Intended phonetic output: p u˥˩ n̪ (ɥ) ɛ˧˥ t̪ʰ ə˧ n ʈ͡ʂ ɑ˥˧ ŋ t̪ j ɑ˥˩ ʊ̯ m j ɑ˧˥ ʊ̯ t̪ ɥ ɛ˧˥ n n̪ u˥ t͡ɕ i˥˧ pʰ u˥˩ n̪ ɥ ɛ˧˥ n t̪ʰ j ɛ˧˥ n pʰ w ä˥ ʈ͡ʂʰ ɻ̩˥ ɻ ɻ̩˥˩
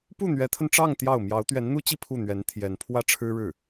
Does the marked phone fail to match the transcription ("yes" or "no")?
no